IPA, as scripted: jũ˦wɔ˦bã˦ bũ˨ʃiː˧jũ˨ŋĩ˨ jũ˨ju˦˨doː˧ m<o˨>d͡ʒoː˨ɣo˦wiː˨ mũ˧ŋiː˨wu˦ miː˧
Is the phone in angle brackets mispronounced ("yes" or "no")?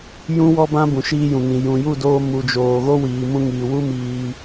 yes